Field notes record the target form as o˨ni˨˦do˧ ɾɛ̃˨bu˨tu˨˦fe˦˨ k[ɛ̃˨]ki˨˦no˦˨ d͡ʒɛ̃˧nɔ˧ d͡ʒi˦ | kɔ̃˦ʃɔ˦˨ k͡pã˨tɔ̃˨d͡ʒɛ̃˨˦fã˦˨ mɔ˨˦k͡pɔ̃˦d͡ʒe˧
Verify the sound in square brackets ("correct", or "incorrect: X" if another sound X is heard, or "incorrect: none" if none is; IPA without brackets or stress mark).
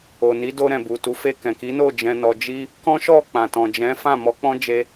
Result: correct